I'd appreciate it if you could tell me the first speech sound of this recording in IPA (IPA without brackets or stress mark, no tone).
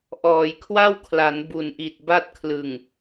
ʔ